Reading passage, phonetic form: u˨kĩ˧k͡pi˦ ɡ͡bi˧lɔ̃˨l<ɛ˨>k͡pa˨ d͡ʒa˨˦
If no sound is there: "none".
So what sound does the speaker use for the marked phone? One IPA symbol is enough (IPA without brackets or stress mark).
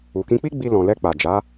ɛ˧